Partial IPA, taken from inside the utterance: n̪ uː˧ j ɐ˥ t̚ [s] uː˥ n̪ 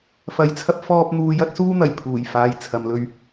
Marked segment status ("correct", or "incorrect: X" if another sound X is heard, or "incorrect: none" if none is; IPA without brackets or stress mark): correct